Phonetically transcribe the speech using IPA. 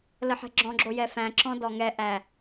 l ə ħ ɛ̤ ɡ͡ǁ ɔ̃ ɡ͡ǁ o j ɛ f æ̃ ǁ ɔ̃ d ɔ ŋ ɛ ʔ æ

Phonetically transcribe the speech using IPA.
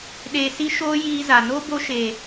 ɗ eː˧ s i˦ ʃ oː˦ j iː˦ z a˨ n o˦ b o˧ ʃ eː˨

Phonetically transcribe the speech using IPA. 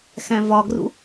x æ̃ v ɒ ɡ r ṵ

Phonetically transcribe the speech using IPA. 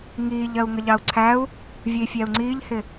ŋ iː ʎ ɜ u̯ ŋ ə ʎ ɑ u̯ ǀʰ æ u̯ | vʲ ə i̯ fʲ æ u̯ ŋ͡ǀ iː ʎ h ɪ

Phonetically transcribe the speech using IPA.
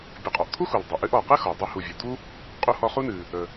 bʲ ə˨ qʼ ɔ˩ ʔ t̪ʰ u˥ x u˩ l dˤ ə˩ ʔ ɨ˦ ʔ ɔ˩ q ɨ˥ x ɔ˩ dˤ ɨ˦ h u˨ vʲ ɨ˩ d̪ u˥ | qʼ u˦ h ɔ˦ χ u˥ n ɨ˨ | ə˨

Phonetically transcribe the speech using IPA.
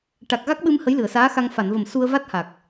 ʈ a˨˩ k̚ ɣ a˦˥ k̚ ɓ ɨ˧ m h ə˧˥ j l ɨ˨˩˨ ə̯ s aː˧˥ x a˧ ŋ f a˨˩˨ n v ə˨˩ m s u˧ ə̯ v a˦˥ t̚ h a˨˩ k̚

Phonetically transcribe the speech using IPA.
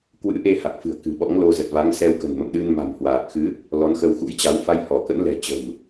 k w ɨ̰˧˥ ʔ e˧ h a˨˩ k̚ f ɨ̤˨˩ ə̯ k ɨ̤˨˩ ɓ ɔ̰˧˥ ŋ l o˧ z ə˨˩ t̚ v a˨˦ ŋ s ɛ˧ w k ə̤˨˩ n m ə̰˧˨ m ɗ ɨ˧ n m a̤˨˩ m h w aː˨˩ k̚ x ɨ˨˦ | l ɔ˨˦ n x ə˧ w x ṵ˧˥ j t͡ɕ a˨˦ w f a˧ j h ɔ˧˩ k ə̰˧˥ n l ɛ̤˨˩ t͡ɕ ə̤˨˩ m

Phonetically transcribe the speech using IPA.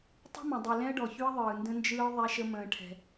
tˤ ə̤˦ m ə̃˨ dˤ ɯ˨ l ɛ̃˦ ə̯ ɖ ɔ˨ ç y˦ ə̯ ðˤ ɯː˨ n d ə̃˦ n d͡ʒ ɯː˦ ðˤ ɛ˦ ʃ ə˦ m ə̃ː˦ ʈʰ ɛ̤˦

